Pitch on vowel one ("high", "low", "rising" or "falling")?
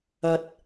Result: low